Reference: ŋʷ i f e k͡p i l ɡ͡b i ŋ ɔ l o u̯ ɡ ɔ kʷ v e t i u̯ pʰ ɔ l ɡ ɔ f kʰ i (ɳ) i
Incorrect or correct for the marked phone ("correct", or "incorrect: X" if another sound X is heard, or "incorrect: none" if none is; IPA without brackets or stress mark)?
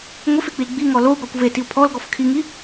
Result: incorrect: ŋ